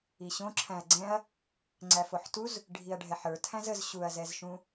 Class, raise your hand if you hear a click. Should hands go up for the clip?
yes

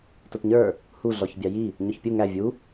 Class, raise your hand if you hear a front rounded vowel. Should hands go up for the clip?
no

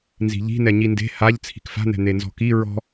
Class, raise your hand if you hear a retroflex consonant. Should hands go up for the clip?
no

